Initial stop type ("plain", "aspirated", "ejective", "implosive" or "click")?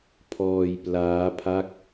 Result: aspirated